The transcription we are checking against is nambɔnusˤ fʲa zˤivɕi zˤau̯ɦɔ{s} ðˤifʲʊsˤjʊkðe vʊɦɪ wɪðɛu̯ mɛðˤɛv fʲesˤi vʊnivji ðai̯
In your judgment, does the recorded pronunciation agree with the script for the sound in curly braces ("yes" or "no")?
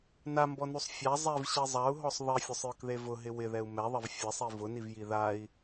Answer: no